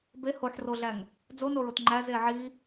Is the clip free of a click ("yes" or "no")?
no